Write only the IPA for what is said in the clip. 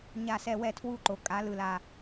ɲa˥˧sɛ˥˧wɛ˥˧tʰwu˥˧ ǃo˧ kʼa˨˥lɯ˧la˧

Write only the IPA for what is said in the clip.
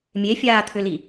mʲefʲaːt̪ʰʏli

